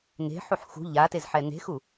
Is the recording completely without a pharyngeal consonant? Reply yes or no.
no